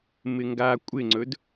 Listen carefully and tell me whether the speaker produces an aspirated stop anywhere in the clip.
no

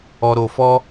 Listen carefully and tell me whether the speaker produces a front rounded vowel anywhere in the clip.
no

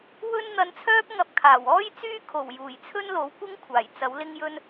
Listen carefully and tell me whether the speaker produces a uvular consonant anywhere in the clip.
no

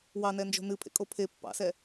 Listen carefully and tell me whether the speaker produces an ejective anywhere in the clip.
yes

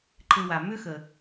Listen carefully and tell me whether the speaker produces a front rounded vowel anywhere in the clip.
yes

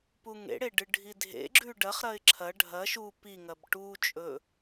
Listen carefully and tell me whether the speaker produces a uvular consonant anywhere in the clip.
yes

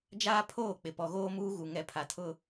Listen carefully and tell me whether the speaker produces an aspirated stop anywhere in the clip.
yes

